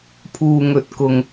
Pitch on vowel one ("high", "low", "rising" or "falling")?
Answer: low